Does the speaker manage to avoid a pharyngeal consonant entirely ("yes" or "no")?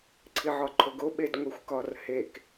no